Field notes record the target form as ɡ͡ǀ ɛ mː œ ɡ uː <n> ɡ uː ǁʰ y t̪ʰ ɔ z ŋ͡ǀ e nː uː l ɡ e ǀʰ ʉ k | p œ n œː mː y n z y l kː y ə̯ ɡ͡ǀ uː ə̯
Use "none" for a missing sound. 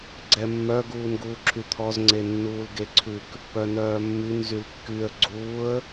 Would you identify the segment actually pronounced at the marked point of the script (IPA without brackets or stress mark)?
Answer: n